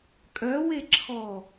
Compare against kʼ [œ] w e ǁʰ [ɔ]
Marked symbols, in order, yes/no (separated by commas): yes, yes